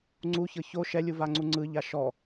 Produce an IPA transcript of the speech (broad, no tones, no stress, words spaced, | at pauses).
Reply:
ŋ͡ǀuçɤ ço ʃɛlʲuvaŋ͡ǀu ŋ͡ǀɯʎa ʃɔ